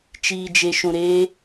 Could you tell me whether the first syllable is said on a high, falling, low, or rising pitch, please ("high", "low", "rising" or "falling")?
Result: low